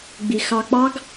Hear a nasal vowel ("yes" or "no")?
no